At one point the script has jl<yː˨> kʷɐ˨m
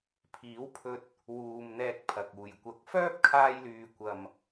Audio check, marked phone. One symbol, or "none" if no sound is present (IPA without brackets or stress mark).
yː˨